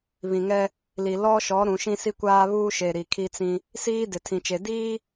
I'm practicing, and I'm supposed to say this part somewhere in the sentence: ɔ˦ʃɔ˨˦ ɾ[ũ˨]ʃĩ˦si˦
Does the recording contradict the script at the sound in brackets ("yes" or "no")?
no